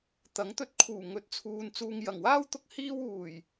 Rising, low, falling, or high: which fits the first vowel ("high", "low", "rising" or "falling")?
rising